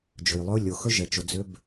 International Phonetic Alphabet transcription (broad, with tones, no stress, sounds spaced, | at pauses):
d͡ʒ ɵ˩ j lˠ ʏ˥ ʊ̯ lʲ o˩ x ɵ˥ ʒ ɛ˩ t͡ʃ o˩ d͡z ʏ˥ b